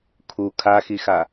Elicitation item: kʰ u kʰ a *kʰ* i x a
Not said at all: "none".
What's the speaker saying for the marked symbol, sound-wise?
x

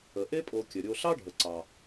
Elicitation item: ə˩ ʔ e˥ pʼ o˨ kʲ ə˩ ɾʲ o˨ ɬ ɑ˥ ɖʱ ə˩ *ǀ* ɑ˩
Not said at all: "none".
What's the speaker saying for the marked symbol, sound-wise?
ǀ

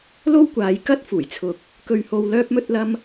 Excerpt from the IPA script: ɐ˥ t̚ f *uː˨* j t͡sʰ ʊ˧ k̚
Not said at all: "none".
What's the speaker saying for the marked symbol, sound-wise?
uː˨˩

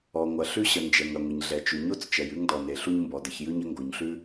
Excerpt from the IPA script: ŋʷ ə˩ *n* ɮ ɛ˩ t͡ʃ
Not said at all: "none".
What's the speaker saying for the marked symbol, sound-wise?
ɲ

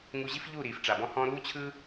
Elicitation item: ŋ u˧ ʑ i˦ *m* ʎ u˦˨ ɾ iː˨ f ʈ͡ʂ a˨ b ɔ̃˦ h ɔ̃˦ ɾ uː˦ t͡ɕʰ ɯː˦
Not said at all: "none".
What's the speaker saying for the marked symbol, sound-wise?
f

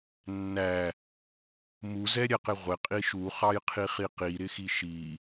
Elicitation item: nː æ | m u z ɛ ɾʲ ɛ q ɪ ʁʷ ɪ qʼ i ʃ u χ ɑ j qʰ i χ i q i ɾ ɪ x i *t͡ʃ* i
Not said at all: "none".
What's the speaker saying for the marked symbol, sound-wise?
ʃ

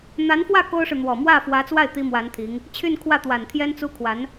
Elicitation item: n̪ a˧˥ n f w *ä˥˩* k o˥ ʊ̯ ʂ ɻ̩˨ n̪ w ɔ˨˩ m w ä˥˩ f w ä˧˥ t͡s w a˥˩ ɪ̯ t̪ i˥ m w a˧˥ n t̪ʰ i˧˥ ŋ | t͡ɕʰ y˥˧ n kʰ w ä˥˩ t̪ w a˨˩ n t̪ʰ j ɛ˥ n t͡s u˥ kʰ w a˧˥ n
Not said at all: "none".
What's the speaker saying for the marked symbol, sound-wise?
ä˥˩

